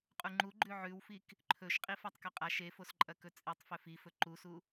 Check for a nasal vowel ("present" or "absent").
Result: absent